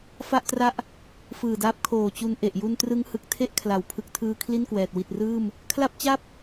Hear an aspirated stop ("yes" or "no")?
yes